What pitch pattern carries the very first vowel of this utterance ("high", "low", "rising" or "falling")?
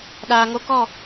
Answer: low